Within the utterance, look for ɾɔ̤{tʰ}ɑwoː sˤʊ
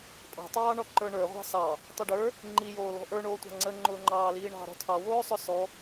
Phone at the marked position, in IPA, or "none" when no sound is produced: tʰ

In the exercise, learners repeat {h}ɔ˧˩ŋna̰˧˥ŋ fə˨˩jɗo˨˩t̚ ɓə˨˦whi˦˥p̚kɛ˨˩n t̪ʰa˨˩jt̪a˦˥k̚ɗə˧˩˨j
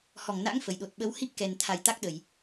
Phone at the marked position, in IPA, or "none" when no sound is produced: h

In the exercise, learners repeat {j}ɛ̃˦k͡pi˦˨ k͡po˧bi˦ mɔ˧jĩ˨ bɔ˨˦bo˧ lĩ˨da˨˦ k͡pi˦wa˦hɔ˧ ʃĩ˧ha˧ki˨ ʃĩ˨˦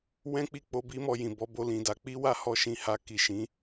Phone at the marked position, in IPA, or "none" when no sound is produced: w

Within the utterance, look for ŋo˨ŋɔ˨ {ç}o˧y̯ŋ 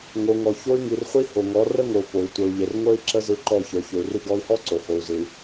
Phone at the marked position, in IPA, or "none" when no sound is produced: ç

